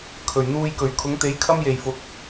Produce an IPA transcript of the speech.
kʰ ɵ˨˩ ɥ n̪ uː˧ j k ɵ˨˩ ɥ kʰ ʊ˨˥ ŋ t̪ e˨˥ j kʰ ɐ˥ m j e˨˩ j f ʊ˨ k̚

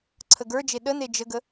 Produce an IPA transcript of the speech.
ǀʰ ə ɡ ə˞ d͡ʒ e ɗ ə n e d͡ʒ ə ɡ ə

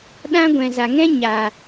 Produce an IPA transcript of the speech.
ɗ ã˦ ɡʷ ɛ̃˨ z a˨ ŋ ɛ̃˦ ɲ a˨

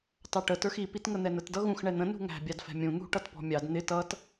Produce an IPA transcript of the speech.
t ɑ ʈ ə t ə˞ x i p i t ŋ ə n̪ ɛ n ə t d ʌ ɣ ũ x ɳ ɛ n̪ ə̃ n ṳ ŋ æ̤ bʲ ɑ d f ɛ̤ mʲ ũ n̪ ṳ ʈ ʌ t p ɔ̤ mʲ ɑ d n̪ ɪ t ʌ t

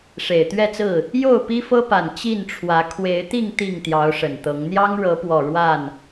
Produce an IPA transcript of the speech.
ʂ e˨˩ ɪ̯ t̪ ɥ ɛ˥˨ t͡s ɹ̩˥˨ | j o˥˨ ʊ̯ p i˦ f ɤ˦ p a˨˩ n t͡ɕ i˥˨ n ʈ͡ʂʰ w ä˨˦ kʰ w e˨˦ ɪ̯ t̪ i˥˨ ŋ t̪ i˥˨ ŋ t̪ j ɑ˨˦ ʊ̯ ʂ ə˨˩ n t̪ ɤ˨˦ ŋ n̪ j ɑ˦ ŋ ɻ ɤ˨˦ p w ɔ˨˩ ɻ w a˥˨ n

